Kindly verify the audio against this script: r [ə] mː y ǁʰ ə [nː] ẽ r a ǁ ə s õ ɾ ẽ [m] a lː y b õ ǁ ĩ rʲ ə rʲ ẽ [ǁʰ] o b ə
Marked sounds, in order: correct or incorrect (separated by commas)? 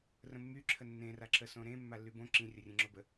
incorrect, correct, incorrect, incorrect